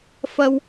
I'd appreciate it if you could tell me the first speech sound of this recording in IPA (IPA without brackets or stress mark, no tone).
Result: f